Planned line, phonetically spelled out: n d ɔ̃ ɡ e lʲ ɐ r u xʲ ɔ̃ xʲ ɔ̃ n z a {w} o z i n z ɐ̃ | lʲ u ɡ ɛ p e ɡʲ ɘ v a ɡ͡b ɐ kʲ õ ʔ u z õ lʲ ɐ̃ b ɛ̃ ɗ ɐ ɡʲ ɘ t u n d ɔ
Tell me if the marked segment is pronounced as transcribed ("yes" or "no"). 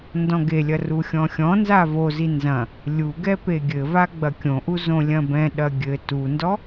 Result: no